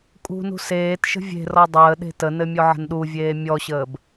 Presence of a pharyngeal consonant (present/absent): present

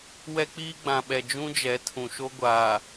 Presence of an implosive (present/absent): present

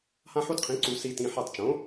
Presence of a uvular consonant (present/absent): present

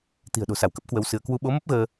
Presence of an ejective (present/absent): absent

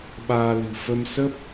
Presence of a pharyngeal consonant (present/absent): absent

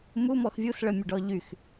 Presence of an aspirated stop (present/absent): absent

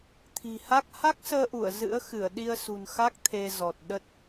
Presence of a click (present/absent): absent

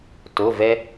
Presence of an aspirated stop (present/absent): absent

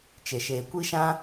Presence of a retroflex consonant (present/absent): absent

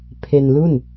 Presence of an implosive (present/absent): absent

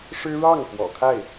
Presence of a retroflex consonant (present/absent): present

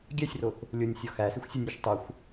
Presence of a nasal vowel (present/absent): absent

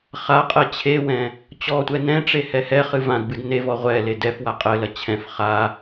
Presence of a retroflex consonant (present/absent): present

